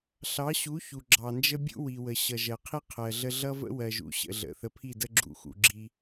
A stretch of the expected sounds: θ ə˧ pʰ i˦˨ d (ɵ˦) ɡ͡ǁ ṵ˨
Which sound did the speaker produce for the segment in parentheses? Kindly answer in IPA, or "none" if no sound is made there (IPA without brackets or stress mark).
ə˦